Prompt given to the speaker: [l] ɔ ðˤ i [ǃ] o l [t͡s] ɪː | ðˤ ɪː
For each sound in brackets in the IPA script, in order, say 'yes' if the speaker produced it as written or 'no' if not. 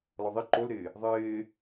yes, yes, no

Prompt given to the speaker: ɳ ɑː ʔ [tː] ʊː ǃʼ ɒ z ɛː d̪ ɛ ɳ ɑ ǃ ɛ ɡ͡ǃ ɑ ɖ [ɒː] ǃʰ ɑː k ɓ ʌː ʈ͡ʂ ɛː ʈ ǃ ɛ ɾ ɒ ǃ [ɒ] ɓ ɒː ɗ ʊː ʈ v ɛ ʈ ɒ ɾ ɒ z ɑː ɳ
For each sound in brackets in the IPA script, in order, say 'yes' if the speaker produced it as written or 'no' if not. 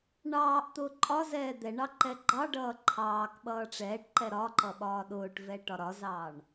no, no, no

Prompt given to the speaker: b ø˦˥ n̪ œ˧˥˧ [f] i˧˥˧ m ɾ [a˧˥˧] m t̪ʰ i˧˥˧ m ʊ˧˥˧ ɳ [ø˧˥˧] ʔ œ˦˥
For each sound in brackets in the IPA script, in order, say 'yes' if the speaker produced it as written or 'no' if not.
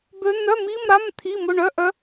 no, yes, no

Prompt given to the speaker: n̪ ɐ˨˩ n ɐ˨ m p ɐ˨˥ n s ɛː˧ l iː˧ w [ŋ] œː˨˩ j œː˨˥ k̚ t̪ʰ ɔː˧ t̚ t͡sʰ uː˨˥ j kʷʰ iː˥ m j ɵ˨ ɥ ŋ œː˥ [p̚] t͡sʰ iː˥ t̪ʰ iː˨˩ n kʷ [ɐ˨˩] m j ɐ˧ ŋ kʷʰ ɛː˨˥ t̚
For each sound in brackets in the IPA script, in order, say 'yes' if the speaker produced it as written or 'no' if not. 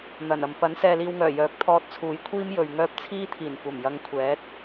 yes, yes, yes

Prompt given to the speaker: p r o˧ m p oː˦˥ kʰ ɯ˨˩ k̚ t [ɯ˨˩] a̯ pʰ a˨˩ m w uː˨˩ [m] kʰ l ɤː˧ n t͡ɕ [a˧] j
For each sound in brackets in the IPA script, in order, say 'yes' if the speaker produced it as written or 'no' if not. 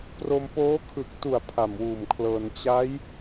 no, yes, no

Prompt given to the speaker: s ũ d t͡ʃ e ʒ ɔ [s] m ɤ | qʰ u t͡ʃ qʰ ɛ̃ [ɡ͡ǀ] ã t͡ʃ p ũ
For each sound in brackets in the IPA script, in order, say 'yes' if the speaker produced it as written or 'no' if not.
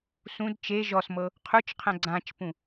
yes, yes

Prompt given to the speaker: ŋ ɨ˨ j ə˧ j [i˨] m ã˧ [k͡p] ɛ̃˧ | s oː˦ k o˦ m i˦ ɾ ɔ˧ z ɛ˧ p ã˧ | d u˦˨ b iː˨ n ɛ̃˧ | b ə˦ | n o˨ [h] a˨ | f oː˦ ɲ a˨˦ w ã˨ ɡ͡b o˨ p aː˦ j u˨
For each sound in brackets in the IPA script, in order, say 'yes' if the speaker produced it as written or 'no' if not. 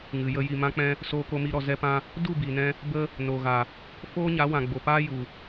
yes, yes, no

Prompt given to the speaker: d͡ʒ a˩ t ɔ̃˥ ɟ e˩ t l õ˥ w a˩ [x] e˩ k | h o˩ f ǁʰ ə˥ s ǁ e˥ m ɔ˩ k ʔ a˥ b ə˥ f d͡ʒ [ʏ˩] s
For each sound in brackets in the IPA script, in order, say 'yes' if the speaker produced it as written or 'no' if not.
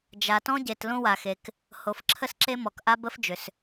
yes, yes

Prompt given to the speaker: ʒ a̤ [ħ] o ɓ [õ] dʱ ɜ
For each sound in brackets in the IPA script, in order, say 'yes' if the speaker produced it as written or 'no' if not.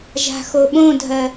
no, yes

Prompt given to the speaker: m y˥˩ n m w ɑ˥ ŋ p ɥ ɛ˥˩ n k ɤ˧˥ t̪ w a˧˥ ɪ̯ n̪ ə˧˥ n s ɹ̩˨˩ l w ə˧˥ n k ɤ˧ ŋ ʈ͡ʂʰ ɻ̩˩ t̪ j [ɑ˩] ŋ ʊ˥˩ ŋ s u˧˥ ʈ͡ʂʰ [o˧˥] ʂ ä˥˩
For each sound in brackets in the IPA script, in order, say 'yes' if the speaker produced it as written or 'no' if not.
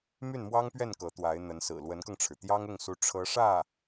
no, no

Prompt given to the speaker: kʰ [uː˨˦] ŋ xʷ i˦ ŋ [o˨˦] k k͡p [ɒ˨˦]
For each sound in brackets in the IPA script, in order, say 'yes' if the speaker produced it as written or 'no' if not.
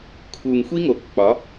no, yes, yes

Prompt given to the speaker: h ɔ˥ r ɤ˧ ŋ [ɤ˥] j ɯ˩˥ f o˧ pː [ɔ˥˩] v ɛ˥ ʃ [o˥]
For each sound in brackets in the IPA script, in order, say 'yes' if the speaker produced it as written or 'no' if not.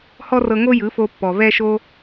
no, no, yes

